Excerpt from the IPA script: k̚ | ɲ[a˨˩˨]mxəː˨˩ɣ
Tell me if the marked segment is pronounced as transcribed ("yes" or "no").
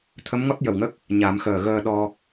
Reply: no